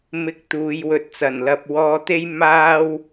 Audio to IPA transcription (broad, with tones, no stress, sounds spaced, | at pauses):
m ɪ˧ k̚ t̪ uː˨˧ j w ɵ˨ t̚ t͡s ɐ˨˩ n l ɐ˨ p̚ w ɔː˧ t̪ e˥ j m aː˥ w